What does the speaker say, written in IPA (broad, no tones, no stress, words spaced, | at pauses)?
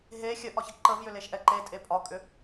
ɦe xʲəʔɒçɐ ǃəv jʏleʃʔɛǃe tʼepʼɒkʼʏ